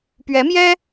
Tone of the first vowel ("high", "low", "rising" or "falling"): rising